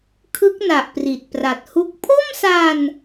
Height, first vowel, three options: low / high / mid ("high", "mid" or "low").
high